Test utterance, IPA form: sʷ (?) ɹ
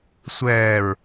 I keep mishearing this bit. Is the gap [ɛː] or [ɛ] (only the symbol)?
ɛː